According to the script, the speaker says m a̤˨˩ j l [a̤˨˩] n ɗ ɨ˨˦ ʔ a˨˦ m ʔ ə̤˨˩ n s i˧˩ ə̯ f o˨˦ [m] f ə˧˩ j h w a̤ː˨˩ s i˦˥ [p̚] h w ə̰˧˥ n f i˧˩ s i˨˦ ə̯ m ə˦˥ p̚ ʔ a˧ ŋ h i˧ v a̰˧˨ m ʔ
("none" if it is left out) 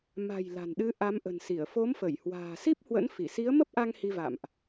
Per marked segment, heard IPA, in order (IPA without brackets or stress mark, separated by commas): a̤˨˩, m, p̚